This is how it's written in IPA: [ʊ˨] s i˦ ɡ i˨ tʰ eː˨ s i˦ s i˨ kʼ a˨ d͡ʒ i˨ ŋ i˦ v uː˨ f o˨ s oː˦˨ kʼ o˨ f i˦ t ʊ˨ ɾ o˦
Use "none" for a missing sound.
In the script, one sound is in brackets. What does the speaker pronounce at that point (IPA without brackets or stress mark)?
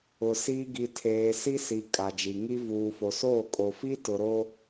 ʊ˨